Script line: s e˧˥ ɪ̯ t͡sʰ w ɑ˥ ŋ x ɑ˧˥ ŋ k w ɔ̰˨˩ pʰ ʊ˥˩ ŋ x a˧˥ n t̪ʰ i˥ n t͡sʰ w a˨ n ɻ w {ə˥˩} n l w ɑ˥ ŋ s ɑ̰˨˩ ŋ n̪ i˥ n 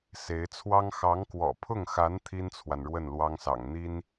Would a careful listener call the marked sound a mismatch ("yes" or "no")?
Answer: no